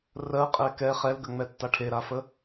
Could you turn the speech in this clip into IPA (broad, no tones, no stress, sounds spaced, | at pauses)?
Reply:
r ɜ qʼ ɛ k ɛ χ ɛ l ɡ ə ŋ͡m ɛ tː a ʈʰ e ɾ a f ə